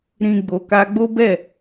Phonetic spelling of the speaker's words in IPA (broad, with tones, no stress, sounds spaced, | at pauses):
ɾ ĩ˨ ɡ͡b o˨ k a˧ ɡ͡b o˦ b ɛ˦˨